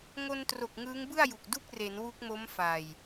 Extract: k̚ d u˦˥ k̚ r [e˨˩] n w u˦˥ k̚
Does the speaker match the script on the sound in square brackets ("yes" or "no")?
no